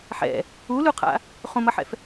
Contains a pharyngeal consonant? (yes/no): yes